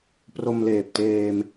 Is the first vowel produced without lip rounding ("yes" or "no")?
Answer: no